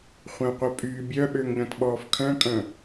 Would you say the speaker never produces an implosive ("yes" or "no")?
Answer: no